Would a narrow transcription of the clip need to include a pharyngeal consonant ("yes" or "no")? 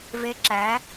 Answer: no